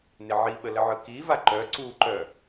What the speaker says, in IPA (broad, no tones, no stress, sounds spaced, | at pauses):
n ɪ ʕ i ɓ ə l ə ʕ ɯ k i v a ǃ œ ǀ u ǃ œ